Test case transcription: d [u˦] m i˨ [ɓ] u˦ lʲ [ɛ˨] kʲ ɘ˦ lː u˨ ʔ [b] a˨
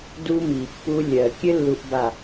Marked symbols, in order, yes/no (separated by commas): yes, no, no, yes